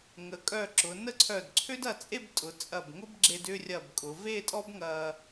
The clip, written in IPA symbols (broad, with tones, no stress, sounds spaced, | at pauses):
ŋ ə˩˧ kʼ œ˧˩ ǁ ʊ˩˧ n ə˥ ǀʰ œ˧˩ d ǀʰ ø˥ d ɐ˧ t͡sʼ e˥˧ b tʼ ʊ˩˧ t͡sʼ ɐ˧˩ b ŋ ʊ˥ b ɡ͡ǁ e˧ d ʏ˥˧ rʲ ɐ˧˩ b kʼ ʊ˩˧ v e˥˧ tʼ ɔ˥ b ŋ ɐ˧